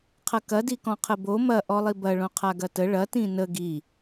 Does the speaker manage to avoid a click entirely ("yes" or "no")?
yes